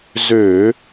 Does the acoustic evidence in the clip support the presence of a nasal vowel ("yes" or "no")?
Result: no